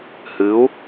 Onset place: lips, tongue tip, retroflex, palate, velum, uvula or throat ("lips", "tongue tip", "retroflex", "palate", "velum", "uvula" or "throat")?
throat